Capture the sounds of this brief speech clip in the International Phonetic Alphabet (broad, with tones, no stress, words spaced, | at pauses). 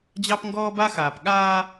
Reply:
d͡ʑɑ˦pŋɡɔː˦ ba˦xaː˨p ɠaː˦